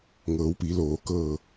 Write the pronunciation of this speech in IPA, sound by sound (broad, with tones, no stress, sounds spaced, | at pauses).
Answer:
ŋ ɤː˩˧ w p i˩˧ l oː˩ k ɤː˧˩